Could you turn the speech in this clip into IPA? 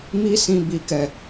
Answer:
mi˦sĩ˧ bi˨kɛ˨

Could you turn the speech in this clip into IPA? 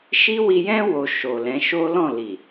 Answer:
ʃi˦wi˧jɛ̃˦ wo˧ʃo˨lɛ̃˨˦ ʃo˦ lɔ̃˦˨ li˨

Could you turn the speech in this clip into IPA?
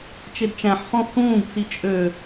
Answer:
t͡ʃedt͡ʃæ̃ħ χõhũːɡ t͡sit͡ʃʼø

